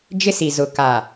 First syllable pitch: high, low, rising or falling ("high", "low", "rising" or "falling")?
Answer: high